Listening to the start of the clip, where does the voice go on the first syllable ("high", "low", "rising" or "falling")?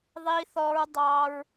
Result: low